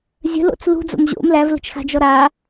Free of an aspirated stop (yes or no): yes